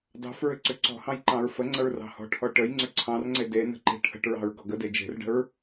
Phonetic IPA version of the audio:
d ɑ̤ f ɹ ʏ ǀ ʏ ǀ ɔ̤ h ɑ̃ j ǃ ɑ̃ ɹ f ə ŋ͡ǀ ə ɹ r ɑ̤ h ɔ̤ ʈʰ ɔ ʈ ə j ŋ͡ǀ ʏ ǀʰ ɑ̃ r ŋ͡ǀ e d e n ə̤ ǃ e̤ ʈʰ ə̤ ʈ ɹ ɑ̤ ɹ ɡ ɔ ɡ ə d e d͡ʒ e̤ r ɖ ə̤ ɹ

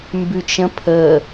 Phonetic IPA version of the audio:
m b ʉ t͡ʃ ə̃ pʰ ə

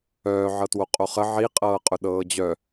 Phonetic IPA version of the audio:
œː ʕ ɤ t w o qʼ o χ ə ʕ i qʼ ɤː qʼ ʊ ɗ ɤː d͡ʑ œ

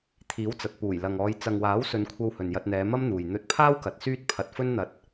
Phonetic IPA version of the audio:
t̪ʰ iː˨˥ w t͡s ɐ˨ t̚ p uː˨˩ j l ɐ˨ ŋ ɔː˨˧ j t͡s ɐ˨ ŋ w aː˨˥ w s ɵ˨˧ n kʷʰ ɐ˧ w h ɵ˨ n j ɐ˧ t̚ n̪ ɛː˨˧ m ɐ˥ m n̪ uː˨ j n̪ ɵ˧ t̚ pʰ aː˥ w k ɐ˨˥ t̚ s yː˥ t̚ pʰ ɐ˧ t̚ f ɵ˥ n n̪ ɐ˧ t̚

